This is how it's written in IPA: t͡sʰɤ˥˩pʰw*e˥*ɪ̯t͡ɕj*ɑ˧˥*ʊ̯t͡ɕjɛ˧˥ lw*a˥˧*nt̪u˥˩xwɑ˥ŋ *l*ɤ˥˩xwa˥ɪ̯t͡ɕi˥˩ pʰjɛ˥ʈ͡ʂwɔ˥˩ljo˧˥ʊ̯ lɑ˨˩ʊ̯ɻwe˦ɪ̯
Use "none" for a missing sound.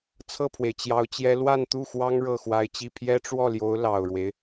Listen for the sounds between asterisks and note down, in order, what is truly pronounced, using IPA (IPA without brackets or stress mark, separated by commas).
e˩, ɑ˧˥, a˥˧, ɻ